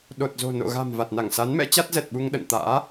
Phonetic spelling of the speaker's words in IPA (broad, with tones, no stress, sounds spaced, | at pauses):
ɗ o˨˩ t̚ z o̤˨˩ n o̰˧˨ ɣ a̤˨˩ m v a˨˩ t̚ n a˧˩ ŋ s a˨˦ n m ɛ̰˧˥ t͡ɕ a˦˥ t̚ z ɛ˨˩ t̚ ɓ u˧ ŋ ɗ ə̰˧˨ n t̪ a̰ː˧˥